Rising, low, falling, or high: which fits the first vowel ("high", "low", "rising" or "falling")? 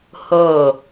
falling